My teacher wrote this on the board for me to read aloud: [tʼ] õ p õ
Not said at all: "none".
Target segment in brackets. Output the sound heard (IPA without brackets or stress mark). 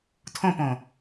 tʰ